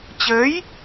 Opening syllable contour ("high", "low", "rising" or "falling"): rising